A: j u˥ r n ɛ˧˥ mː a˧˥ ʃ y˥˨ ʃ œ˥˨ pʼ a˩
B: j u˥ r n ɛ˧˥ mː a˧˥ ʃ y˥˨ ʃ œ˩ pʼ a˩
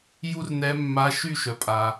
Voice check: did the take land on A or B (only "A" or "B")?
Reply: B